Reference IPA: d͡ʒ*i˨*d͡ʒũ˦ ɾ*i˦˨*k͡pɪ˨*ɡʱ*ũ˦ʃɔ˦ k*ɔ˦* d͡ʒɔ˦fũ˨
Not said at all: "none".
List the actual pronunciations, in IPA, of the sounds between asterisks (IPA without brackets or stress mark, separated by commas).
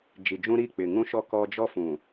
i˨, i˦˨, ŋ, ɔ˦